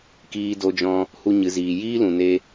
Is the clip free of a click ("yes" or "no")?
yes